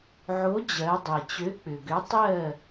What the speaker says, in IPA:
ʕ o˨˥ d͡ʑ ɜ˩˧ dˤ e˩ t͡ɕ ø˨˥ k͡p ʏ˩ ɡ ʏ˨˥ tˤ ɜ˥˨

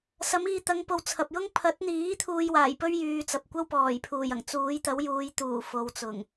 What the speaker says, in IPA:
s ɐ˨˧ m iː˧ t̪ ɐ˨˧ ŋ p o˨ w t͡sʰ ɐ˨ p̚ j ʊ˥ ŋ pʰ ɐ˨˥ t̚ n̪ iː˨˥ t̪ʰ uː˧ j w aː˨˩ j p ɵ˥ ɥ j yː˨ t͡s ɐ˨ p̚ kʷ ɐ˥ w p ɔː˨˩ j pʰ uː˨˩ j ɐ˨˩ ŋ t͡s uː˨˥ j t̪ ɐ˨˥ w j uː˨˧ j t̪ uː˨˩ f o˨ w t͡s ʊ˨˩ ŋ

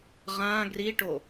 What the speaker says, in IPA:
ʁ ã ɡ r i ʈ o

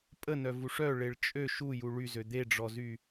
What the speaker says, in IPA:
pʼ ə n œ v u ʂ œ ɭ e ɭ t͡ʃʼ ø ʃ u j u ɭ y z ø d̪ e ɖ͡ʐ ɔ z y

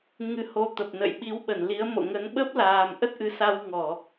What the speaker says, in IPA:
ŋ ɨ˨˦ h o˧ t̪ ə˨˩ p̚ n ə̰˧˨ j ɓ i˨˦ w ɓ ə˧˩ n l i˨˦ ə̯ m o̰˧˨ ŋ ə˨˦ n ɓ ə˦˥ p̚ l aː˨˩ m ʔ ə˦˥ t̚ ʔ ɨ˨˦ s a˧ w ŋ ɔ˧˩˨

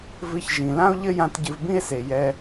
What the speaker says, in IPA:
v ɨ˧ ç ʒ ĩ˨ l ã˦ o̯ ʎ ɘ˦ j ã˧ t ɟ ɨ˧ v b ĩ˦ e̯ s e˧ j ɛ˦

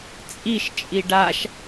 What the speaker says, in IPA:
t͡sʼ i ʃ t͡ʃʼ i ɖ a ʃ

